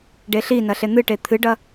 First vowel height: mid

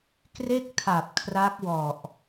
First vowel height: mid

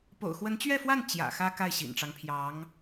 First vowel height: mid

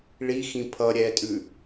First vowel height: high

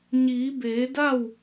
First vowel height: high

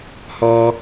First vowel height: mid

